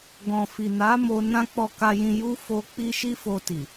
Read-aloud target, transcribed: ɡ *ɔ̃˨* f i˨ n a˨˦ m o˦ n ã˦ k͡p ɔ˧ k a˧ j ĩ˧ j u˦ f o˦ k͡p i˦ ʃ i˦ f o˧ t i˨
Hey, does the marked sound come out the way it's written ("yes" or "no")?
yes